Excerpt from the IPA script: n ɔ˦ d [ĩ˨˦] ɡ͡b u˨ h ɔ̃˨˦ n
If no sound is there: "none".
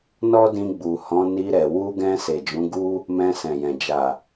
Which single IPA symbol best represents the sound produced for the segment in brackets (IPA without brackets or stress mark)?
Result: ĩ˧